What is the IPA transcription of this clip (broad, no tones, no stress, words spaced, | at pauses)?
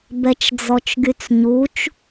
bɛt͡ʃd͡zɔt͡ʃɡyt͡sɲut͡ʃ